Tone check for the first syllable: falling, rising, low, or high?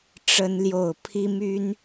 high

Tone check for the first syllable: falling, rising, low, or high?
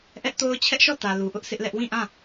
high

